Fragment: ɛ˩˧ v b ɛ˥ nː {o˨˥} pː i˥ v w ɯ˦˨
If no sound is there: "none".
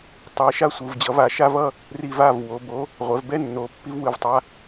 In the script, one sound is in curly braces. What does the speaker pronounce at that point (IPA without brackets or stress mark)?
o˨˥